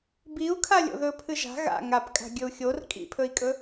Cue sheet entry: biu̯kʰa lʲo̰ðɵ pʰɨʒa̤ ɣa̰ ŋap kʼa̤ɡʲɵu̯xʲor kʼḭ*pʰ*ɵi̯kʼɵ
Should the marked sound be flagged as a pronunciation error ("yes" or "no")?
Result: no